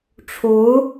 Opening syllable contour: rising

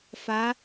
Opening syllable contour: rising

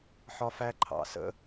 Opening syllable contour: high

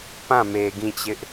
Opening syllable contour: falling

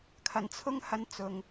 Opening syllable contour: low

